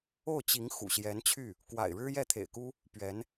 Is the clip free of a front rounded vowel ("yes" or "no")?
no